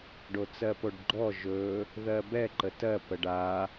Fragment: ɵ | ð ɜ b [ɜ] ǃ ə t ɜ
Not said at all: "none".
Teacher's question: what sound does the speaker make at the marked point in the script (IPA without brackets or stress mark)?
ɛ